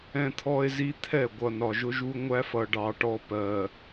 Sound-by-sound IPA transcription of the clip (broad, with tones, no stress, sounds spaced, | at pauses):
ɛ̃˦ t̪ʰ ɔ˦ e̯ z i˦ t̪ʰ ɛ˦˨ ɡʷ ʌ˨ n ɒ˨ ʒ ʊ˦ ʒ u˦ ŋʷ æ˦ f ʌ˨ ɖ ɑ˨ ʈ ɔ˦ p ɜ˨